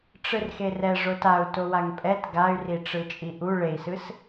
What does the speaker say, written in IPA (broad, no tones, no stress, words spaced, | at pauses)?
ʈ͡ʂɯrxerɛ ʐotau̯ towaŋpʼɛt ɡay̯riʈ͡ʂɯt͡ʃʼi ʔu ɭei̯sɯs